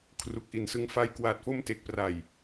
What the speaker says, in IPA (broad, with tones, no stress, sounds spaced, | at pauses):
kʰ r u˨˩ k̚ ʔ i˩˦ n s ɯ˧ ŋ f a˦˥ j k w aː˨˩ t̚ f o˧ m t e˨˩ k̚ p r a˨˩ j